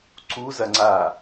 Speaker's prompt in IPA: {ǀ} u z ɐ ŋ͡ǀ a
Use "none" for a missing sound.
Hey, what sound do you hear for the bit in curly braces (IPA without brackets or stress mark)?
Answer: ǀ